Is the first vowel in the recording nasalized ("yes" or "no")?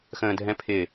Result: yes